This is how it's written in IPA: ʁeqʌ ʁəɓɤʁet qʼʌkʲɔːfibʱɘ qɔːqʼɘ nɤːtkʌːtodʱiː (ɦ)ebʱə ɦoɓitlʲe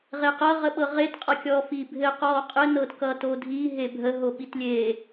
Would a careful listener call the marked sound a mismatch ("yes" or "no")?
no